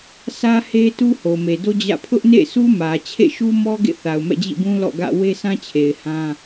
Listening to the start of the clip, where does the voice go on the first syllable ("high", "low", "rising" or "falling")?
high